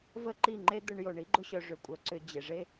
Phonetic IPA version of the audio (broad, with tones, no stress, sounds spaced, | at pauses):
v ə˦ ǃ i˦˨ ŋ͡ǃ e˦ d̪ ʊ˧ ɳ j o˨ ɳ i˦ ɡ͡ǃ ʊ˧ ɕ œ˨ ʐ ʏ˨ kʷʼ œ˨ ǀ ʏ˨ d͡ʑ e˨ ʐ e˦